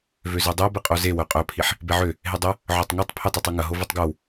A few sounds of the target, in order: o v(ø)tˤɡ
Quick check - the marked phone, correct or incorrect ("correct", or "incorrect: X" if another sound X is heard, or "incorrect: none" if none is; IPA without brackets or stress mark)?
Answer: correct